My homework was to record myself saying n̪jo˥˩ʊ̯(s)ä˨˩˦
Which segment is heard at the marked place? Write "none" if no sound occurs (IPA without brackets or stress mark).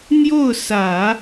s